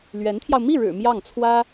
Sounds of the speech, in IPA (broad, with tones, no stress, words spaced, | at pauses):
lɥɛ˧˥nt̪ʰjɑ˧ʊ̯ mi˥˩ɻɻ̩˨˩ mjɑ˥˩ŋt͡sʰwä˥